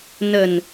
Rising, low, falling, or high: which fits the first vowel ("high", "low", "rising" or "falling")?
low